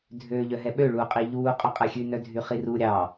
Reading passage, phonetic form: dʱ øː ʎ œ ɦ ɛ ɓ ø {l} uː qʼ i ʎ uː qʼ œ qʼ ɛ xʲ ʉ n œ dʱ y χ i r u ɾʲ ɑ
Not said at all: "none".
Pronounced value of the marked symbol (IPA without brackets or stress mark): ɭ